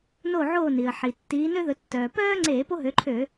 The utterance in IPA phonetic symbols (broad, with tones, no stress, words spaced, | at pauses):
no˦˨ʕoː˦˨ni˩ə̯ ħi˩ tːiː˨˦nø˥ðɵ˨˦ tːœː˩ pœː˥ŋ͡ǀe˧˩˧ po˥ɦø˨˦ǃʰø˧˩˧